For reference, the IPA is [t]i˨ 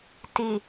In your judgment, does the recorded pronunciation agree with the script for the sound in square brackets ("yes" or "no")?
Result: yes